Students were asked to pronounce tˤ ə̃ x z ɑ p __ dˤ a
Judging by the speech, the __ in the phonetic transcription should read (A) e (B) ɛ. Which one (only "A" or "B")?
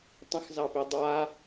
A